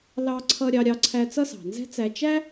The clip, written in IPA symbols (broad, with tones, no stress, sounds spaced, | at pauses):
l ɑ˧ ǀʰ ʌ˧ ɾʲ ɑ˧ ɾʲ ɑ˧ ǀʰ æ˧ t͡s ʌ˥ s ɑ̤˩ n z ɛ̤˥ t͡s æ˧ t͡ʃ æ˥